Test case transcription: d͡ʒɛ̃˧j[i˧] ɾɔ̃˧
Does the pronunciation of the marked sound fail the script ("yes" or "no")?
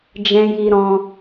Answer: no